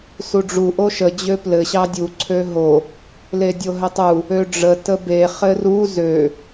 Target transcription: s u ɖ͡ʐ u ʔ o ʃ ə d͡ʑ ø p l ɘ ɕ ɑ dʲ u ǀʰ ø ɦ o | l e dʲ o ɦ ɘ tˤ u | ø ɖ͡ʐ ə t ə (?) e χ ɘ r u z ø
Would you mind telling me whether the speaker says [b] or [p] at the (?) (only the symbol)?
b